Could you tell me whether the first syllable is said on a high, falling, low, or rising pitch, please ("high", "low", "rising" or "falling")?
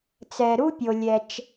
low